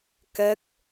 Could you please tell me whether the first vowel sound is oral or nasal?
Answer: oral